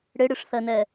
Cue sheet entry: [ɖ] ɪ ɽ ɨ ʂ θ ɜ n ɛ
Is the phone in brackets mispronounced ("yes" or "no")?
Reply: yes